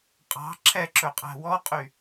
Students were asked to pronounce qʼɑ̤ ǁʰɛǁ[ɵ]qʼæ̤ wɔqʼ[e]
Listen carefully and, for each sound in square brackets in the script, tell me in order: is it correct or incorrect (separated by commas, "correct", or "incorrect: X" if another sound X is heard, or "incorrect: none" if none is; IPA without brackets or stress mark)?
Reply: correct, incorrect: y